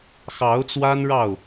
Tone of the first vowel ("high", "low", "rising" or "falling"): rising